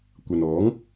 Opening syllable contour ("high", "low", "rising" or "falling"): low